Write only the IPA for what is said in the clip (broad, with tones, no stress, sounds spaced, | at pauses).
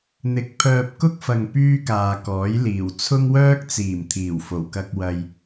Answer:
n̪ ɪ˨˥ k̚ pʰ œː˧ p̚ k ʊ˥ k̚ f ɐ˨ ŋ p yː˥ k aː˨ k ɔː˨˥ j l iː˨˩ w t͡sʰ ʊ˥ ŋ w œː˥ k̚ t͡s iː˨˩ m t̪ʰ iː˨˩ w f o˨˩ w k ɐ˧ k̚ w ɐ˧ j